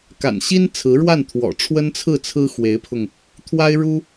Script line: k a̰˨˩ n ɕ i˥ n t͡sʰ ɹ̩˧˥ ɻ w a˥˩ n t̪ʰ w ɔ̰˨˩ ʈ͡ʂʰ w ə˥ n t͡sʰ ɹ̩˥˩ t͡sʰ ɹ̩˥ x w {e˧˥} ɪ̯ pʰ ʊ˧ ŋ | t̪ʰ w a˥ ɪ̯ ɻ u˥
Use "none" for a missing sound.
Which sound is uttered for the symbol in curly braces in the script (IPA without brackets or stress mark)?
e˧˥